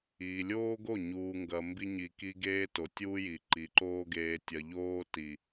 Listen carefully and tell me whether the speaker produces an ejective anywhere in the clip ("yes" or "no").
no